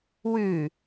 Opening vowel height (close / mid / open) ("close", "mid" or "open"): close